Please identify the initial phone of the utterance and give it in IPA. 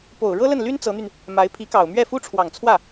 p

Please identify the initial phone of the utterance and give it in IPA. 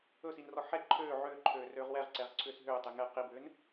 ɵ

